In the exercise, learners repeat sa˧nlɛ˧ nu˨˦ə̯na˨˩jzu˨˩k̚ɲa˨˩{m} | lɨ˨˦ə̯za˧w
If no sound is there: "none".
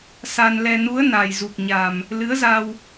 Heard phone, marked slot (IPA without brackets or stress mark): m